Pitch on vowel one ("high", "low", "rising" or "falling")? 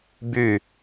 falling